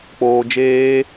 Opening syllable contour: low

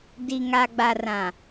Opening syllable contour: low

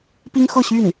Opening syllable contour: high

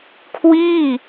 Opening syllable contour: falling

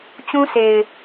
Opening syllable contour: high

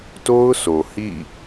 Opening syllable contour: high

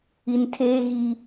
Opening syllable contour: low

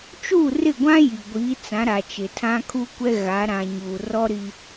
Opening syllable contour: falling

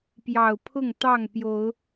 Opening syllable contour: low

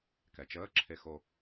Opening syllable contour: low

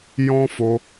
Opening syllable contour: high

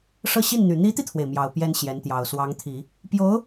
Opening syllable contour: falling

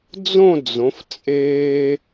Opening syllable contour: falling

